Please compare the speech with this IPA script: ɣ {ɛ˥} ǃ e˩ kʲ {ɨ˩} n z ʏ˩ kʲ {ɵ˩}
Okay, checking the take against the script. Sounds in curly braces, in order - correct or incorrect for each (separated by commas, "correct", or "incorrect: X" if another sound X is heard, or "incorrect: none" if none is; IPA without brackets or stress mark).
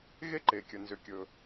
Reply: incorrect: e˥, incorrect: ə˩, correct